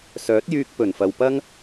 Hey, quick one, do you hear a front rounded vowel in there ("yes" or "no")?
yes